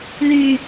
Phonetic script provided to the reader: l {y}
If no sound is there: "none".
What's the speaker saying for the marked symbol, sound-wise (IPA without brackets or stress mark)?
y